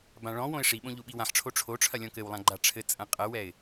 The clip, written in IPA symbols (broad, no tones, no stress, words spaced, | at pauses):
bãɭɔ̃wõɪ̯ ʂiɓõ ʎuɓiwãħʈ͡ʂʰo ʈ͡ʂʰoʈ͡ʂʰɐ lʲɔ̃kɘwlˠã ɡ͡ǃaʈ͡ʂʰɘt͡sʼɐ̃ qʼɐwɛɪ̯